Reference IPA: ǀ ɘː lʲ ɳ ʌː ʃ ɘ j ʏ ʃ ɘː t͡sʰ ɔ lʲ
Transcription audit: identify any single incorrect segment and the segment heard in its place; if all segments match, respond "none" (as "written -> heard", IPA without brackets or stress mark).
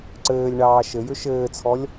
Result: ʌː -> ɑː